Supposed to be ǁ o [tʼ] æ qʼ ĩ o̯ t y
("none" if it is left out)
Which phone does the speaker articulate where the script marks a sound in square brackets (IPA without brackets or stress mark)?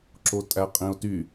tʼ